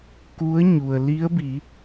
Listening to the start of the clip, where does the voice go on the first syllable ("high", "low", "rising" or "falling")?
rising